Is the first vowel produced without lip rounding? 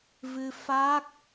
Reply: yes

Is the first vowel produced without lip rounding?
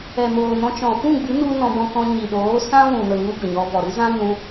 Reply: yes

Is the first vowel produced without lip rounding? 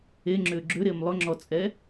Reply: yes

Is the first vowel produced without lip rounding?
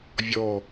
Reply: no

